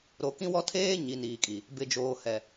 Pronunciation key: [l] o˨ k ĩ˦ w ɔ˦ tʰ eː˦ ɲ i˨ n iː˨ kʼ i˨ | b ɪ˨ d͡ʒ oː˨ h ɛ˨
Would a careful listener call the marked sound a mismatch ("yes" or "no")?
yes